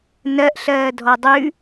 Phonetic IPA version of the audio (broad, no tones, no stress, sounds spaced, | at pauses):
n ɜ ʔ ɬ ɜː dʱ ɔ dˤ ʉ